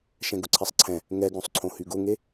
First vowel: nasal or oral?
nasal